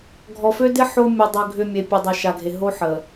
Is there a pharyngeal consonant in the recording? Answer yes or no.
yes